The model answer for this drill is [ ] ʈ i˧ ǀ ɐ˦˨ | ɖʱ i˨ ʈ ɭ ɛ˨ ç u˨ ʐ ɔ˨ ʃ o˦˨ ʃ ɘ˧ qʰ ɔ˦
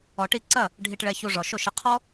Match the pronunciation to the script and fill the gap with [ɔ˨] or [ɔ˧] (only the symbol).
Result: ɔ˨